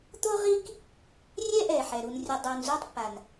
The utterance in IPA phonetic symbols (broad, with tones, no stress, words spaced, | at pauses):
t̪o˦ʁi˦k | rʲɛ˥ʔɛ˩ħɛ˩ ɾu˨nrʲʊ˨ dˤɛ˨n zu˦tˤpːa˩n